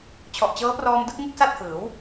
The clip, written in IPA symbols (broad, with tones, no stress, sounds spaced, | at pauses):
t͡ɕʰ ɔ˨˩ ʔ t͡ɕ ɤː˦˥ p r ɔː˧ m d ɯ˥˩ k̚ ŋ u˥˩ k̚ s a˥˩ t̚ h ɯː˩˦ w